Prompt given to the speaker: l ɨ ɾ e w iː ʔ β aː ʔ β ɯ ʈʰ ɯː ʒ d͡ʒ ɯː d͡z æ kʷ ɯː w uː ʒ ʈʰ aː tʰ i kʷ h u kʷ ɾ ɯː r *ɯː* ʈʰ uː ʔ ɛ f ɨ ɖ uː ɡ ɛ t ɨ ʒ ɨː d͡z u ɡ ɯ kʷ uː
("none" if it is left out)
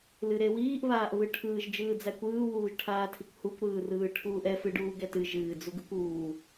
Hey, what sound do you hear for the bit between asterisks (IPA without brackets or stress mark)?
ɯː